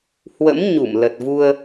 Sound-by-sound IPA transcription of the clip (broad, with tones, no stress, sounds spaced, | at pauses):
h w ə̰˧˥ m ɲ u˧˩ m l ə˨˩ t̚ v u˧ ə̯